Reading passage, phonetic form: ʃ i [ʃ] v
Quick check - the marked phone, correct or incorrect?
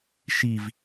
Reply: incorrect